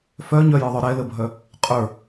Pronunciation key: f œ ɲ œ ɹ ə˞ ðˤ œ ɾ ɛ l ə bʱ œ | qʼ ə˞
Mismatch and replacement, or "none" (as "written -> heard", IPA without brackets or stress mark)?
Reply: ɹ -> j